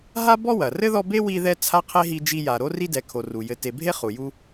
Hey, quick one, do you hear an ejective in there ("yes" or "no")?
no